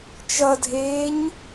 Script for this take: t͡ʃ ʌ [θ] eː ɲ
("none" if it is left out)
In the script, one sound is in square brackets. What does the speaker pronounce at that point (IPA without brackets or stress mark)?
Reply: dʱ